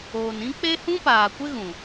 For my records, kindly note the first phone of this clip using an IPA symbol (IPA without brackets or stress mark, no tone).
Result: oː